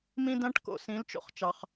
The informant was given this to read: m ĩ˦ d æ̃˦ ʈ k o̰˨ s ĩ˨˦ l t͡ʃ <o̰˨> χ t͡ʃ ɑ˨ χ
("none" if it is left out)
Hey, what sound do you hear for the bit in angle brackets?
o̰˨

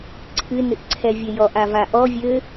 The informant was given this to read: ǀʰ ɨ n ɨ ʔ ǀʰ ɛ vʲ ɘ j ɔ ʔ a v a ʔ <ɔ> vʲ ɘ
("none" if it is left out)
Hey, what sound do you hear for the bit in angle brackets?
ɔ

